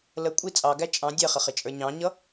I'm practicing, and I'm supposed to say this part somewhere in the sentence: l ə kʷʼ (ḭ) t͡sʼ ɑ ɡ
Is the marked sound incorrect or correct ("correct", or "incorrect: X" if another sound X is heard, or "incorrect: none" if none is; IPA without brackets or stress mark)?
incorrect: i